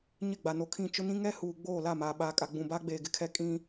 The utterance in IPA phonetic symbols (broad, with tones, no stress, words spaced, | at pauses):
ɲɪ˦˨ɡ͡ba˨no˨kʰĩ˦˨ t͡ʃʊ˦nĩ˦ ŋɛ˦huː˨ɡ͡boː˦˨ la˦˨maː˨ɓaː˨ kʼa˨ɡ͡bũ˨baː˦ɡ͡beː˨ ɡɪ˦kʰɛ˦ kʼĩ˦